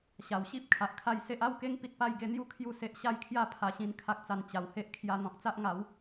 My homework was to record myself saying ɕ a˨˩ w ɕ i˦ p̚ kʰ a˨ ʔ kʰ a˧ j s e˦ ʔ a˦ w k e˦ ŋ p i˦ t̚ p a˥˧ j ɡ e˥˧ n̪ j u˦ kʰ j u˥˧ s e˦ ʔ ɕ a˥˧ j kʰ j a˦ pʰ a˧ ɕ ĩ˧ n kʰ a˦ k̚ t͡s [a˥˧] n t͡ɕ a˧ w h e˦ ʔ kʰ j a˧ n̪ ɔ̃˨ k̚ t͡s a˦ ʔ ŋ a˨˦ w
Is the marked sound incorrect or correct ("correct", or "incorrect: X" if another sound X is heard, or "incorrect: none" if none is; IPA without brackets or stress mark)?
incorrect: a˧